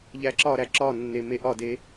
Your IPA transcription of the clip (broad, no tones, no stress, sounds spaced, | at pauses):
ʎ æ ǁ ɒ ɾ æ ǁ ɒ nː e m e ʔ ɒ d e